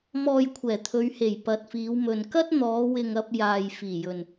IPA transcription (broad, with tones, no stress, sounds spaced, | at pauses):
m ɔː˨ j kʷʰ ɛː˨˩ t̪ʰ ɵ˨˧ ɥ h e˨˩ j p ɐ˨ t̚ f iː˨˧ w m ɵ˨ n k ɐ˥ t̚ n̪ ɔː˨˧ w ɪ˨ ŋ ɐ˧ p̚ j aː˨ j f iː˨˩ j ɵ˨ n